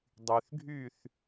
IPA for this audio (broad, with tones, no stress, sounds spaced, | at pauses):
dˤ y˩ θ ɡʱ y˥˩ θ